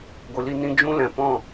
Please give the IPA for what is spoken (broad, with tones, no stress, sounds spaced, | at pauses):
ɡʷ ɨ˨ l i˧ n ĩ˧ d͡ʒ ũ˦ l ɛ̃˨ p ɔ̃˦˨